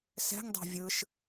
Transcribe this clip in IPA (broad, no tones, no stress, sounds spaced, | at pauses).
s ɛ̤ ŋ dˤ ɛ̤ vʲ ɯ ʃ